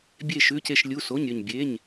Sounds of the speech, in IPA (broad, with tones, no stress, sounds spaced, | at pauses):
bʲ e˥˧ ʃ ʉ˧˥˧ c e˥˧ ʃ lʲ u˧˥˧ s o˧˥˧ ɲ ɾʲ ɵ˥˧ ɲ bʲ e˧˥˧ ɲ